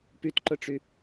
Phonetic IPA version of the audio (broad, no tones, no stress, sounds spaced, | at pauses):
p y t ǃ ʊ ʈ͡ʂ y